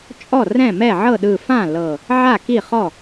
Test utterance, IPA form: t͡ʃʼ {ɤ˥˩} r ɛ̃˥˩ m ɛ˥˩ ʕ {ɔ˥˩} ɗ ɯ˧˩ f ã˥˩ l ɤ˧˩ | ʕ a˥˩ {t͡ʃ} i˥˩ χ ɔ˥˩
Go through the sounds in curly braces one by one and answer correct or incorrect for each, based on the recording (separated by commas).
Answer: incorrect, incorrect, incorrect